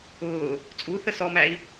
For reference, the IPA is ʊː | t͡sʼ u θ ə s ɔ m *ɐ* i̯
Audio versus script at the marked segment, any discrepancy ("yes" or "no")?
yes